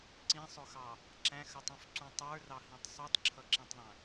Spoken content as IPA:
ǀ ĩ sˤ ʊ x ɑ | ǁ æ̃ x ə tˤ ũ f ǀ ũ tˤ ə˞ r ɑ h ĩ tˤ sˤ u tˤ ǁʰ ʌ ǁ ĩ tˤ ðˤ æ̃

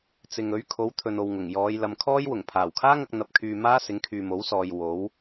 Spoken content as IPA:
t͡s ɪ˨ ŋ ɵ˨˥ ɥ kʰ o˨˥ w t̪ʰ ɵ˨ n o˨ w ŋ ʊ˨˩ ŋ j ɔː˨˧ j l ɐ˨ m kʰ ɔː˥ j w ʊ˨˩ ŋ pʰ aː˨˩ w kʰ aː˥ ŋ ɐ˧ k̚ n̪ ɐ˧ p̚ kʰ yː˧ m aː˥ s ɪ˨˥ ŋ kʰ yː˨ m o˨˥ w s ɔː˨ j w o˨˥ w

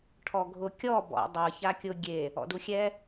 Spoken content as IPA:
ʈʰ ɔ ɡʱ ʊ kʲ ɔ b ɔ̰ dˤ ɤ ç a kʲ ʊ ɡʲ e | ɔ̰ d u xʲ ɛ

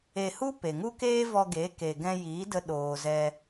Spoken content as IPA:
e˧ h u˦ p e˨ ŋ u˦ k eː˦ v ɔ˧ ɡ e˨˦ k e˨ ɡ ɛ̃˧ j iː˨˦ d ə˧ ɗ oː˨ z ɛ˧

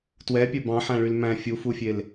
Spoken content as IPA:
t w ɛ pʲ œ b ɑ̃ ħ æ̃ ɭ y l m æ̃ fʲ u f u fʲ e l

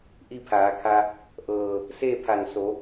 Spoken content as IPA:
ʔ i˥˨ pʰ aː˩˧ kʰ a˧ | ʔ ɤː˧˩ | s eː˥˨ pʰ a˧˩ n s o˩˧

